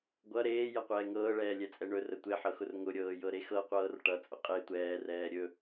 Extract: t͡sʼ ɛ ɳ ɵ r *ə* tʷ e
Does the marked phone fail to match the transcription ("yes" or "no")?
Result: no